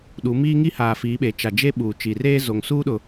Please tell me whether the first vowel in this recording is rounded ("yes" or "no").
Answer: yes